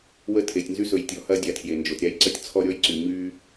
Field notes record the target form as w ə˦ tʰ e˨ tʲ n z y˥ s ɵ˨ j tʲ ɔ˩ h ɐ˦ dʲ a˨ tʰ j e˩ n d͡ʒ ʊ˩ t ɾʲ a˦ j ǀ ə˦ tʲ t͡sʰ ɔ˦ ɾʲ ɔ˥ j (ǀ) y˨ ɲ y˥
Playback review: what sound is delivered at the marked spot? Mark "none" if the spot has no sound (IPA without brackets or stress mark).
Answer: ǀ